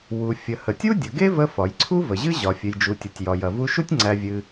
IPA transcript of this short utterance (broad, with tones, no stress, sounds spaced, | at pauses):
w u˩ fʲ ə˩ h ə˩ tʲ u˥ dʲ ə˩ ɡ e˥ v ə˧ f ɒ˩ j ǀʰ u˥ v ə˩ ʑ ɨ˥ ʑ ɒ˩ fʲ ɨ˩ j d͡ʒ u˩ tʲ u˩ tʲ j ɒ˩ j ɐ˩ v u˧ ʃ u˥ tʲ ŋ͡ǀ æ˧ vʲ ɨ˧